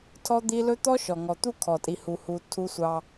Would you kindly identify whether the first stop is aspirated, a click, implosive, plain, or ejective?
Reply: aspirated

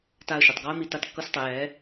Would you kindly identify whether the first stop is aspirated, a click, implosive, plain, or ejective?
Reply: plain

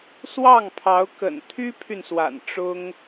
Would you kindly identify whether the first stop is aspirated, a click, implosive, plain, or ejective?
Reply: aspirated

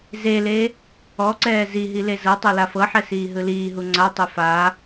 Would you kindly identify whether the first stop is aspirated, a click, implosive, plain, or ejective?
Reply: click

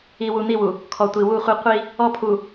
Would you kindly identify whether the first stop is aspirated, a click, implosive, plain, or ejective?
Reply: aspirated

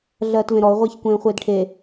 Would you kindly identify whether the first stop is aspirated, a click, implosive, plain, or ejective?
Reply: plain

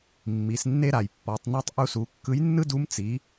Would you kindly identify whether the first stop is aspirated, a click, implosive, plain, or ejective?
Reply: plain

